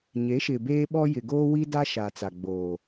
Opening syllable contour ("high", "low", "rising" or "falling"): rising